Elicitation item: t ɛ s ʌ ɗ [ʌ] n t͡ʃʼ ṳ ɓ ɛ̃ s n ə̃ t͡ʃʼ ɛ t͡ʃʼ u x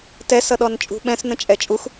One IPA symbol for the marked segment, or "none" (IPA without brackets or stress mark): ɔ